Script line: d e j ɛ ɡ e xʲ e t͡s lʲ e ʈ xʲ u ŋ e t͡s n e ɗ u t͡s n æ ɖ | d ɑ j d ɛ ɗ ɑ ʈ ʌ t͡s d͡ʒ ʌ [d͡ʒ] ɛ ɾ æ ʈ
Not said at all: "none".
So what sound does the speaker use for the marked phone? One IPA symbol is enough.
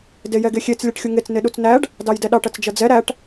d͡z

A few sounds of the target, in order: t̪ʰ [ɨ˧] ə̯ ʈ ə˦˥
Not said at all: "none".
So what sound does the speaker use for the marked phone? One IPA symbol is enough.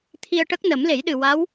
i˧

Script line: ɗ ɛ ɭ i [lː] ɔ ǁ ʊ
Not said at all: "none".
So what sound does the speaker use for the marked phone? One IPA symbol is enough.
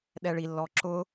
lː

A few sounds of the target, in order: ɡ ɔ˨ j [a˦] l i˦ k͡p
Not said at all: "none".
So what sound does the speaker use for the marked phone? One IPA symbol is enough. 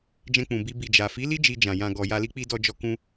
a˧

